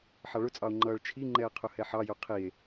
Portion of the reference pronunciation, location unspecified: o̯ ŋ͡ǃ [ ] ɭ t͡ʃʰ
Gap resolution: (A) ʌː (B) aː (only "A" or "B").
A